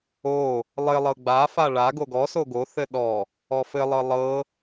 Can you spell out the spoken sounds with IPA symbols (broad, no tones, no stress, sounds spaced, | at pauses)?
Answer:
o | lˠ ɘ lˠ ɤ ɡ͡b a f a ɭ a ɡ o ɡ ɔ s o ɡ o θ ɘ ɗ ɔ | ɔ f ɘ lˠ ɤ lˠ ɤ